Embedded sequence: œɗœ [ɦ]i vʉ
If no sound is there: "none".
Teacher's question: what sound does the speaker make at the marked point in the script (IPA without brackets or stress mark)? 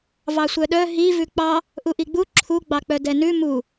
ɦ